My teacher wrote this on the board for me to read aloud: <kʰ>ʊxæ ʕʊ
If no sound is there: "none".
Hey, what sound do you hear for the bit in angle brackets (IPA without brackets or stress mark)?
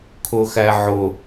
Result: kʰ